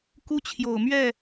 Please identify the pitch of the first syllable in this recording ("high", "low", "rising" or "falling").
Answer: high